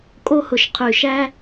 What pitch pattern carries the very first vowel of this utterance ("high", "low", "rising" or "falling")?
high